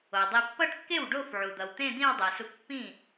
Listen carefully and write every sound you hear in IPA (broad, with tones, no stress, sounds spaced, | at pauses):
o˩ dˤ i˧ pː ʌ˥˧ ʈ kː e˥˩ w ɖ o˥˧ f ʕ u˩ d̪ ʌ˩ w t̪ ẽ˥˧ d̪ ĩ˥˧ w dˤ ɛ˩ s u˧ k pː ĩ˥˩